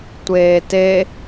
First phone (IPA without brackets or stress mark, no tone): tʷ